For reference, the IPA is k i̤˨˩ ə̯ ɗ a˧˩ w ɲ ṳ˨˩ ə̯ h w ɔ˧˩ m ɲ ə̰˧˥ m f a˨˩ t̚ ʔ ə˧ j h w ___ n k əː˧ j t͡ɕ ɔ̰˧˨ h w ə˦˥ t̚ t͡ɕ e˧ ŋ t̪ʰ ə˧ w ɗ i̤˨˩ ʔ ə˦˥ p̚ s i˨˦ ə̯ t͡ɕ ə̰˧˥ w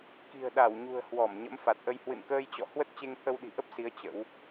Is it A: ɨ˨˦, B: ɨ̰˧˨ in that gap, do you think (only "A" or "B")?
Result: B